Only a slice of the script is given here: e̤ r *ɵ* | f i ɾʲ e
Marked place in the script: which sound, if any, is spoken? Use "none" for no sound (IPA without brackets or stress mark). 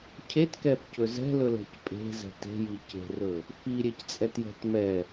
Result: ɵ